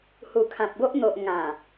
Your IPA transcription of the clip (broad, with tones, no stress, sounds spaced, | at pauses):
h u˨˩ kʰ ã˨ p̚ ɡ o˦ ʔ n̪ o˨ ʔ ŋ ã˨˩